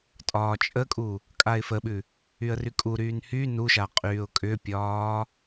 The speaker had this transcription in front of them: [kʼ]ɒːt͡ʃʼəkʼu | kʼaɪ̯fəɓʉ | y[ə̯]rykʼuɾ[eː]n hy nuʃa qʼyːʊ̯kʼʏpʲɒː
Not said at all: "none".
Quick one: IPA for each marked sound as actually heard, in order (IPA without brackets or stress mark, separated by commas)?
tʼ, ə̯, yː